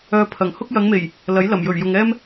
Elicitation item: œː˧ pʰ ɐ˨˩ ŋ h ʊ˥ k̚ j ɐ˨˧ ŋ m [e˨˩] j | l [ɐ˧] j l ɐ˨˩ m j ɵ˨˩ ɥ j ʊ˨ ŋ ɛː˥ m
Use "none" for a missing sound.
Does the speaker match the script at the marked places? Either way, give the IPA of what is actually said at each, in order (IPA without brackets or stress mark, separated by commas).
e˨˩, ɐ˨˥